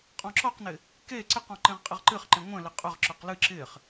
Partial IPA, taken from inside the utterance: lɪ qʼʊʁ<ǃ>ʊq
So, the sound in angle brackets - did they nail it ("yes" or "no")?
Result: no